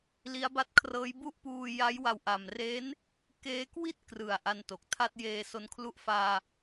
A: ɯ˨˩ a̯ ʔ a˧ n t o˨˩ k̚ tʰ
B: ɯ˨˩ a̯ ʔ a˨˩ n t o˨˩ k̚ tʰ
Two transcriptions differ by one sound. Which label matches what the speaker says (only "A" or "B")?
A